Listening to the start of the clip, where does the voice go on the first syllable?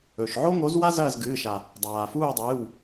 low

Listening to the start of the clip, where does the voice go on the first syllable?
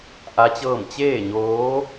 rising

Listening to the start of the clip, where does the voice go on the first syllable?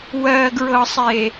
low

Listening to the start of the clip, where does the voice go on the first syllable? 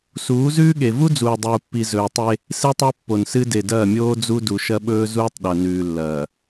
rising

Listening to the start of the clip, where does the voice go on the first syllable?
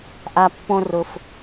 low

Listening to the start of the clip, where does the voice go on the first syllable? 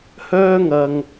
high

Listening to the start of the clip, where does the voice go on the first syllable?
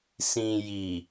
low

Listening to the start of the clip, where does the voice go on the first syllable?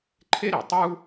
high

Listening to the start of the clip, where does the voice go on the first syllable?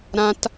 high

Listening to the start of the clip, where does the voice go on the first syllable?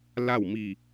falling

